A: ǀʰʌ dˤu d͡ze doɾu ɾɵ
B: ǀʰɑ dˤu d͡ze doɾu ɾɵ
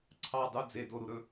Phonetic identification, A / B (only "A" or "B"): B